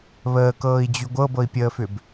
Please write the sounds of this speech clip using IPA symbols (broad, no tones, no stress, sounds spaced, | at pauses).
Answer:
β əː k ɤː i̯ d͡ʑ y ɡʷ ɤ b ɤ i̯ pʲ əː f ʏ b